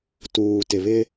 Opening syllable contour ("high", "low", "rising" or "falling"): low